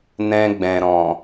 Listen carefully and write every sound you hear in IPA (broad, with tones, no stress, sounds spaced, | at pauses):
n ɛ̃˧ ɡ͡b ɛ̃˨ ɾ ɔ̃˨